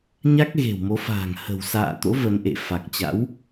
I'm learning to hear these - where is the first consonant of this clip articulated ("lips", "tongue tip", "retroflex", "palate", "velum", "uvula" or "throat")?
palate